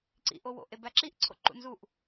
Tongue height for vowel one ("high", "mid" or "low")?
high